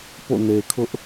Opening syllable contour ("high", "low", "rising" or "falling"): falling